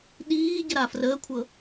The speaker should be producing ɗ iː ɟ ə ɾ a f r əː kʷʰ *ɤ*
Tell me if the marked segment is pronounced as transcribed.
yes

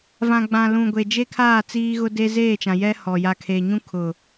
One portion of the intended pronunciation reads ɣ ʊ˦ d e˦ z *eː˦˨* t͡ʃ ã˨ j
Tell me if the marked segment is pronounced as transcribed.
yes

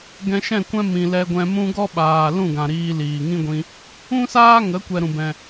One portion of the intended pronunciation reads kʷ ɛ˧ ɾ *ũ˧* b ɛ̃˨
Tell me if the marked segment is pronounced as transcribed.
no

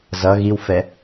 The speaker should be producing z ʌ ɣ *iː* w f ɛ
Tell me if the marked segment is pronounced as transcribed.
no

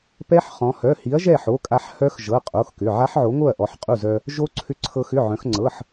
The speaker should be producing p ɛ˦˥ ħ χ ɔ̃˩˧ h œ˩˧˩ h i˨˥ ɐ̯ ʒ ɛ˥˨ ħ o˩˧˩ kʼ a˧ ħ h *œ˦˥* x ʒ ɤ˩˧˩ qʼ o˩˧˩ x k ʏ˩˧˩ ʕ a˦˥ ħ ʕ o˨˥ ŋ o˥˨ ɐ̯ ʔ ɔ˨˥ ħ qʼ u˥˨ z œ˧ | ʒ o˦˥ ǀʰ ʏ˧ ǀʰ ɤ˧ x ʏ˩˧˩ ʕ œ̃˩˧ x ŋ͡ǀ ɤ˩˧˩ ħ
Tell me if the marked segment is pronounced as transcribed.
yes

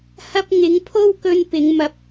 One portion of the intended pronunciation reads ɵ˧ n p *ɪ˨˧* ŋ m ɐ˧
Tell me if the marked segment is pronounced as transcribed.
yes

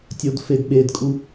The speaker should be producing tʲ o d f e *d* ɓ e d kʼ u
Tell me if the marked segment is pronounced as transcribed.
yes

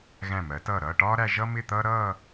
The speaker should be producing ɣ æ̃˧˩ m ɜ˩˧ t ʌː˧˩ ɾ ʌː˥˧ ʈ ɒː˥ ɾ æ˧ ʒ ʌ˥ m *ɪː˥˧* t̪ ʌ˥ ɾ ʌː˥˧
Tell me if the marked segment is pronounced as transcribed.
no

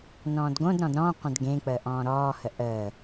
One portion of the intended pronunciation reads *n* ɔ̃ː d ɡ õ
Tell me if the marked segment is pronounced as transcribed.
yes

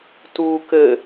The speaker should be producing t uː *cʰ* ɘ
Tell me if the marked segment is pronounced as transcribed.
no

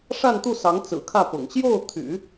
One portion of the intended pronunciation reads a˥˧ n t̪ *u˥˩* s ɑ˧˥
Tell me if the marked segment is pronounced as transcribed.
yes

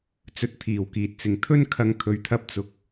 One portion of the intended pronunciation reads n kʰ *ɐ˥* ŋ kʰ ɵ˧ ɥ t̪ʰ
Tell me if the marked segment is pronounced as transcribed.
no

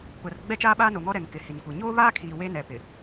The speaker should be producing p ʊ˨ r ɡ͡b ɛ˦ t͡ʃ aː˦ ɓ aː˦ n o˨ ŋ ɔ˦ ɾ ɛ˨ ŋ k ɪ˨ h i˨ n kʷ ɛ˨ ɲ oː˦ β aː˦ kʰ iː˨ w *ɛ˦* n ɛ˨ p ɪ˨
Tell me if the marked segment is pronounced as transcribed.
no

